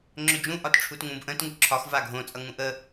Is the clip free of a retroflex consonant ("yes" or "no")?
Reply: no